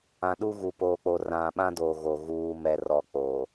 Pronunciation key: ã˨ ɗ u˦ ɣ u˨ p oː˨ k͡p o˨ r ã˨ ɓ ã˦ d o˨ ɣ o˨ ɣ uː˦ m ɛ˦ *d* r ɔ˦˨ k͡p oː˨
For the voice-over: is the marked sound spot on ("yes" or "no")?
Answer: no